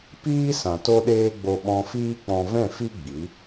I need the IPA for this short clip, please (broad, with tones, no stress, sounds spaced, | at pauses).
p iː˦ s ã˨ t o˦ ɗ eː˦ ɡ͡b o˧ ɓ ɔ̃˧ f iː˦ k͡p ɔ̃˧ v ɛ̃˦˨ f i˦ ɡ͡b i˨˦